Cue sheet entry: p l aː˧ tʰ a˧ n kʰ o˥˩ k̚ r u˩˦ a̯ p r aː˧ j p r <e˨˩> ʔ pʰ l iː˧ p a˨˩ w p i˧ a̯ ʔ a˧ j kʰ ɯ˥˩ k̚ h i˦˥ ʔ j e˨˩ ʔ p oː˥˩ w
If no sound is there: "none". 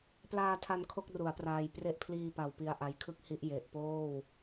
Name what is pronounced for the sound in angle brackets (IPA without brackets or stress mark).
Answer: e˦˥